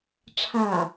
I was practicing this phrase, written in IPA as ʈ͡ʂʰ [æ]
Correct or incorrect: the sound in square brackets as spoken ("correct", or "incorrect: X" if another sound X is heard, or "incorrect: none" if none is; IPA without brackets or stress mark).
incorrect: a